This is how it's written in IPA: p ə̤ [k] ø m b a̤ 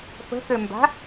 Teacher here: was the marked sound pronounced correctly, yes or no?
yes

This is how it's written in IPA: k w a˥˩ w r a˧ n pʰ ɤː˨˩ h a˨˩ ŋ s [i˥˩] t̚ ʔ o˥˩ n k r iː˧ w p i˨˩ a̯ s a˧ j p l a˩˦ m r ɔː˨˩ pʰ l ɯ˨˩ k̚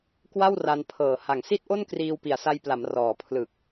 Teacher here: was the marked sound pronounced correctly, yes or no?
yes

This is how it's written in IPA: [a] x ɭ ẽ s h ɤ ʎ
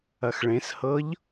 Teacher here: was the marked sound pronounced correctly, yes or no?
no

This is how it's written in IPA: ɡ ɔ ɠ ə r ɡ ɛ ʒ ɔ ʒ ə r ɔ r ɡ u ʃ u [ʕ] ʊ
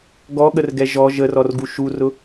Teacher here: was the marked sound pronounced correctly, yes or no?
no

